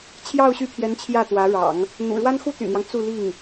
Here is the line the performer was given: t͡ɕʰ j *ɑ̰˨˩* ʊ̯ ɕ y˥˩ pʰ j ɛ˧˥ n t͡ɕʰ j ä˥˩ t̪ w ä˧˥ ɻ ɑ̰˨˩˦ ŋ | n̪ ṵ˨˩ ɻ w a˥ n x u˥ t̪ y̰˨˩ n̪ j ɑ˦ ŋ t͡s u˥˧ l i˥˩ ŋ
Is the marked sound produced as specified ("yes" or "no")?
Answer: no